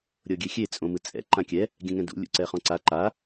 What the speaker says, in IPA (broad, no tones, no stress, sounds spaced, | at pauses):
ɾʲ ɤ ɡʲ e xʲ e t͡sʼ õ m ɯ t͡sʼ ɛ̰ ǃ ã kʲ ɛ | ɡʲ ɛ̃ ŋ ɛ̃ d ṵ lʲ ṵ ǀ ɛ χ ɔ̃ ǀ a ǃ a